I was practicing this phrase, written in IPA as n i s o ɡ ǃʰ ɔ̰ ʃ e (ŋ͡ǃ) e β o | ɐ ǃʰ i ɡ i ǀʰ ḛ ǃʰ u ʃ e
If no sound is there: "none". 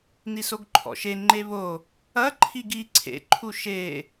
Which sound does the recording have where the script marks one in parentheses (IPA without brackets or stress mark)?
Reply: ŋ͡ǃ